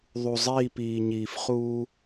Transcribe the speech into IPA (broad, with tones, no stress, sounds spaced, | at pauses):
ðˤ u˨ zˤ iː˦˨ p iː˨ ɲ iː˨ f χ uː˦